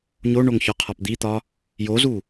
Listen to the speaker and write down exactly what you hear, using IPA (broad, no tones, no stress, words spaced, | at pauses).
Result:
ɲoɳoŋçɒqʰɒp d̪it̪ɒ | jozu